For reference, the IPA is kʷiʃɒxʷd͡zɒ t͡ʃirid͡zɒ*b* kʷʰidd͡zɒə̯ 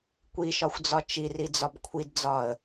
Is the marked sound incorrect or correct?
correct